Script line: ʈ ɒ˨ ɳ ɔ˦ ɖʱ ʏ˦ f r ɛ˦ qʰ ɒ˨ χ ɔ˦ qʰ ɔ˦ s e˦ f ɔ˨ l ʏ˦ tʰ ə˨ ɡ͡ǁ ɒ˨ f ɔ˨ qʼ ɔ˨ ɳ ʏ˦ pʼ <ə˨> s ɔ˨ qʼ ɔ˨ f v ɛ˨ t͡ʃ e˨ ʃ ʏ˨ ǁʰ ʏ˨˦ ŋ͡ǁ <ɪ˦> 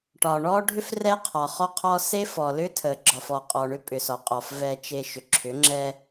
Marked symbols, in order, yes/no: no, no

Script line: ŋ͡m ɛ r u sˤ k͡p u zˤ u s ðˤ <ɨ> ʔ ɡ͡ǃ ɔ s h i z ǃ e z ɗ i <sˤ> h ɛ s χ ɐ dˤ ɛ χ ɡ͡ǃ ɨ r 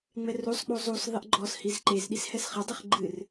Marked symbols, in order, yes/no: no, no

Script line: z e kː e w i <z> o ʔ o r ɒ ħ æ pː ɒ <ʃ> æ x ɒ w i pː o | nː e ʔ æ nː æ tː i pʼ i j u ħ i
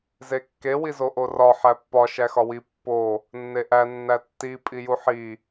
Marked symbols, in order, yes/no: yes, yes

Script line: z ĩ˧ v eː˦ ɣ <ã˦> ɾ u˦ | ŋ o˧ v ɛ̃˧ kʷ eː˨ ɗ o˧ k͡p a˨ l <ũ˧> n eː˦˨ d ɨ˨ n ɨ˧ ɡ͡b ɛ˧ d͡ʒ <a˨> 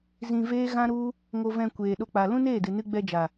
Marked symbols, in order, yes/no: yes, no, yes

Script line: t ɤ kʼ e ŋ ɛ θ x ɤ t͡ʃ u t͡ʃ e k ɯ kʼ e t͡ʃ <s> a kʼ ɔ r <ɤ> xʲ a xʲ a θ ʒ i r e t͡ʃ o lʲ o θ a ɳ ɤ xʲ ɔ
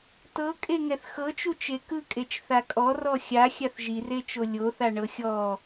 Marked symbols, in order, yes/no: no, no

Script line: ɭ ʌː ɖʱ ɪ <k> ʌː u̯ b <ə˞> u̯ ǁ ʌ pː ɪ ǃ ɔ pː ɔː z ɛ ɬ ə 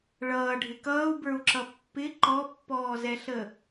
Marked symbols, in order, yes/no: yes, yes

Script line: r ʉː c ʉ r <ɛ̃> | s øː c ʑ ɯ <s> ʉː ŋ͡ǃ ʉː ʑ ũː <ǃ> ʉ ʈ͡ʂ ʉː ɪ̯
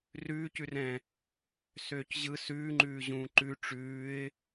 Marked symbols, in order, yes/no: yes, yes, yes

